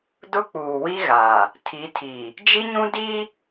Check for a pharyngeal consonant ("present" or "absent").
absent